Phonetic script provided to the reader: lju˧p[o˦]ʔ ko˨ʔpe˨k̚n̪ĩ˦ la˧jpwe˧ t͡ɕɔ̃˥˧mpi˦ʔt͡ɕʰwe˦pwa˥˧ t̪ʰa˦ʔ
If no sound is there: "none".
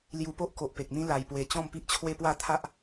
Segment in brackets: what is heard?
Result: o˦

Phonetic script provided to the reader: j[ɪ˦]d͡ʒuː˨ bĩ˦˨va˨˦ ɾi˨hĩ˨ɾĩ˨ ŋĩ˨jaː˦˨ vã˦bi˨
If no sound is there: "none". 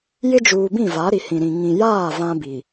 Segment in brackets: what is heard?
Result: ɪ˦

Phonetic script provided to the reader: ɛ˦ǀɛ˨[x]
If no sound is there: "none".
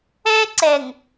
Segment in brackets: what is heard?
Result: ŋ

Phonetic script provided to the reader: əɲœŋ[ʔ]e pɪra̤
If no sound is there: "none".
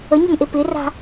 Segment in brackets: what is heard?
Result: ʔ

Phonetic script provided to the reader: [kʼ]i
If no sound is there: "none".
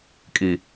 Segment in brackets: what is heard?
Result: kʼ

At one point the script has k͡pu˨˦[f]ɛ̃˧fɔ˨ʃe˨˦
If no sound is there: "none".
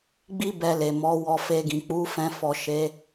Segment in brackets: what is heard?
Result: f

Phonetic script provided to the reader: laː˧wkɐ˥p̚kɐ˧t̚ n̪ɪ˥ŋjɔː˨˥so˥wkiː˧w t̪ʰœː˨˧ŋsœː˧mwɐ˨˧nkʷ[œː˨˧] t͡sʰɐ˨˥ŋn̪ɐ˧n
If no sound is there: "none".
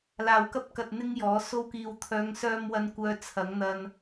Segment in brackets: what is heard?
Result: œː˨˧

